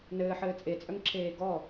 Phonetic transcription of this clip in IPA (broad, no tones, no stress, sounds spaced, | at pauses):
n ɘː ħ ɘː t͡sʼ e t͡sʼ œ ŋ ǁʰ eː ɡ ɔ